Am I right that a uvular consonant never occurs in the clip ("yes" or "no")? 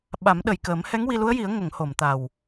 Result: yes